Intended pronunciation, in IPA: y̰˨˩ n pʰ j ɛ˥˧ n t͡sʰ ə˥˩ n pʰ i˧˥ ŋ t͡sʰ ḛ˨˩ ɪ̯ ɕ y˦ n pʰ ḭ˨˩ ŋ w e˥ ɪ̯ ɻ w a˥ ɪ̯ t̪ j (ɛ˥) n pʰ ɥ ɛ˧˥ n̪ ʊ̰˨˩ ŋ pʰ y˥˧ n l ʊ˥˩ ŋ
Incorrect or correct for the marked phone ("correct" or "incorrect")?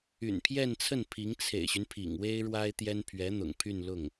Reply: correct